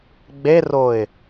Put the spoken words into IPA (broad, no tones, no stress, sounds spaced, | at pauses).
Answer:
ɡ͡b e r o ɪ̯